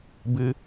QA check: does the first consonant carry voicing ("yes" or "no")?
yes